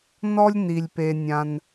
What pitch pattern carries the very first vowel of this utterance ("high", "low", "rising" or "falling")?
high